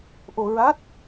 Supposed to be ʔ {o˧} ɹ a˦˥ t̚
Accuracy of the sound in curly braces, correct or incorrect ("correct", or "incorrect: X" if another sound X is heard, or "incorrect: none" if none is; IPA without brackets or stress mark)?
correct